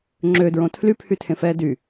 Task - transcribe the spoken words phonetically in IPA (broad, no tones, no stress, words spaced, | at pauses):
ŋ͡ǁødɹõ tʰlypʰy tʰẽfɛːdy